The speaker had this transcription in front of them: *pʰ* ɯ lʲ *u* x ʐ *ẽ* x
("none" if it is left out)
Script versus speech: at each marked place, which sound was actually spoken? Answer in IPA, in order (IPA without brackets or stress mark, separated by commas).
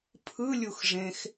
pʰ, u, ẽ